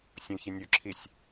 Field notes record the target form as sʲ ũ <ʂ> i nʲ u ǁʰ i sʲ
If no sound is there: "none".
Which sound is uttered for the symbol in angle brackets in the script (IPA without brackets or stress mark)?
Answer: ç